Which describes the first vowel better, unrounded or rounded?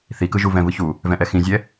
unrounded